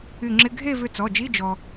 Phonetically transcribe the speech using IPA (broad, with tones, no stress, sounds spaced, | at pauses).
y˧˩ ŋ͡ǁ ɪ˧˥˧ ɡʱ e˥˧ v ʏ˧ t͡s ɔ˩˧˩ d͡ʒ i˧˥˧ d͡ʒ ɔ˧